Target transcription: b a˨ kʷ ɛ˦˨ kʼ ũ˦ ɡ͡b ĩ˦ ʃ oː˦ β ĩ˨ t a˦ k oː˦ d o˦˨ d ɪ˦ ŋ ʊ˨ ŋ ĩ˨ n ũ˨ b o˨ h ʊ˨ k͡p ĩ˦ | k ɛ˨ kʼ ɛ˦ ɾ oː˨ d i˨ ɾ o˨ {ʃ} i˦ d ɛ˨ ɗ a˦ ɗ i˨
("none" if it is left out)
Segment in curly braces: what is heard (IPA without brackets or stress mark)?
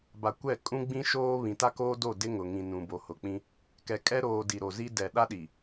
z